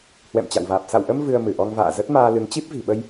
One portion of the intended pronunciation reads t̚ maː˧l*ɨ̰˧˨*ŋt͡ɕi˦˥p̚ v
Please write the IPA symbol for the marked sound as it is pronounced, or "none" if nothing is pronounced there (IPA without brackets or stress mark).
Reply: ɨ˨˦